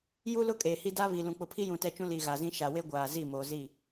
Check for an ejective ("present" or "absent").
present